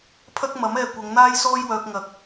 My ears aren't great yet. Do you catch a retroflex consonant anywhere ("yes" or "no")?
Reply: no